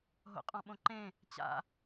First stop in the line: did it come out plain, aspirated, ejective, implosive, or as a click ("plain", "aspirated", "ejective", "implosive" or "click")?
ejective